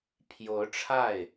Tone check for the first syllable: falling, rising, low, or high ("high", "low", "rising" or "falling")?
rising